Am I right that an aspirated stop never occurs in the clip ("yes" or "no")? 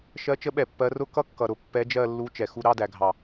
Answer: yes